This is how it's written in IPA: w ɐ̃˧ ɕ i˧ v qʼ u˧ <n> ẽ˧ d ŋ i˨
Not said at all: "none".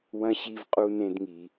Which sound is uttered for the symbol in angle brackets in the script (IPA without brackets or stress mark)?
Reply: n